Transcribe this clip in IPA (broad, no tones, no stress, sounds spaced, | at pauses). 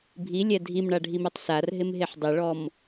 bʱ i lʲ ɛ dʱ i m ɳ a ɖʱ i m ɛ tˤ s a r ɦ ɪ m ɦ e ħ dˤ ɪ ɭ ɔ m